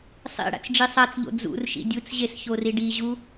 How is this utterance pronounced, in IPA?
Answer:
sˤ ḛ ɽ a̰ t͡s ɖ͡ʐ i sˤ a t͡s ʎ o̰ d͡z ṵ r ʃ ḭ dʲ u t͡s ʑ e s ç o r i ɖ i ʑ u

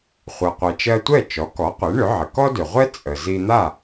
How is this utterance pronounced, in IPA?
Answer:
χʷ ɜ˩ qʷ ɛ˩ t͡ʃ ɜ˧ tʷ ɛ˥˩ t͡ʃ ɔ˩˥ k ɔ˩˥ qʷ ɛ˩˥ ɳ ʏ˩˥ ʕ ə˩ k ɔ˥ d ʏ˩ ʁʷ ɛ˥ t͡sʼ ə˩ z i˧ n̪ a˥˩

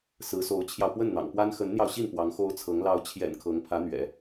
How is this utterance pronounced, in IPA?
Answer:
s ɹ̩˧˥ s o˧˥ ʊ̯ t͡ɕʰ j ɑ˧ ʊ̯ p w ə˥˩ n n̪ ɑ̰˨˩ ŋ p w a˥ n x ə˧˥ n n̪ j ɑ˧ ʊ̯ ɕ i˥˩ n p w ɑ˧˥ ŋ x o˥ ʊ̯ t͡sʰ ɤ˧˥ ŋ l ɑ˧˥ ʊ̯ t͡ɕʰ j ɛ̰˨˩ n kʰ ɤ˧˥ ŋ pʰ ä˧˥ n̪ ɥ ɛ̰˨˩˦

